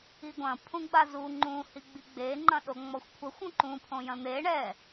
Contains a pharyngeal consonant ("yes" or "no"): no